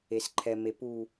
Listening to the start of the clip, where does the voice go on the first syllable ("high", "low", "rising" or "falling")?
low